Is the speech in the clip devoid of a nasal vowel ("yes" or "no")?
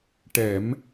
yes